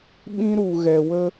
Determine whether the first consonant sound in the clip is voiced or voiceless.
voiced